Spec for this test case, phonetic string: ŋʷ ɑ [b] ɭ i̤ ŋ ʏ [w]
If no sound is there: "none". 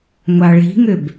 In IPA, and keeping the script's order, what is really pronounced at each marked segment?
none, b

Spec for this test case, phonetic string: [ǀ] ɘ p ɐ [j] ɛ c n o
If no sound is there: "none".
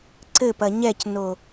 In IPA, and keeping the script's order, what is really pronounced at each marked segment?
ǀ, ɲ

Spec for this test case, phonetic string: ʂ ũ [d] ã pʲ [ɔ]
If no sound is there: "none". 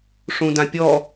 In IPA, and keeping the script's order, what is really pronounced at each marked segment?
d, ɔ

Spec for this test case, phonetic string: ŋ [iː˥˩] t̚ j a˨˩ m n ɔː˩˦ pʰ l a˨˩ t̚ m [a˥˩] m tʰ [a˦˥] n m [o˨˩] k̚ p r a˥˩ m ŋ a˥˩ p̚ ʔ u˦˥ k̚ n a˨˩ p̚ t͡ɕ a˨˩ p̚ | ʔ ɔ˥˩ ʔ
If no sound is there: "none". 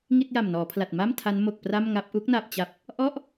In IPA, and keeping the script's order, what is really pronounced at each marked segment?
i˥˩, a˥˩, a˦˥, o˨˩

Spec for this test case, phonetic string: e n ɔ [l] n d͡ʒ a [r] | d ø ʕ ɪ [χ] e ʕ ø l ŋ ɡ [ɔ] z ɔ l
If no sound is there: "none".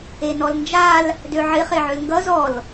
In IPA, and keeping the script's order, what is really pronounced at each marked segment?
l, l, χ, ʌ

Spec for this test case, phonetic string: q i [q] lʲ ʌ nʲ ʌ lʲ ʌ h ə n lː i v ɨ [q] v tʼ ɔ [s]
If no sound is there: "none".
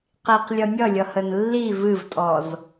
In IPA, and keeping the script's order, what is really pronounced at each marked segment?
q, none, z

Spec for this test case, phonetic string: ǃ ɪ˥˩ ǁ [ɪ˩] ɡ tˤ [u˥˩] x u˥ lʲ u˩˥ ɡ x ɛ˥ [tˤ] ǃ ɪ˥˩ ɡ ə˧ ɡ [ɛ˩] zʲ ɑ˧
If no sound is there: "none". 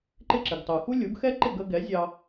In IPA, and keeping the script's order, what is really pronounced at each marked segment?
ɪ˩, u˩, none, ɛ˩˥

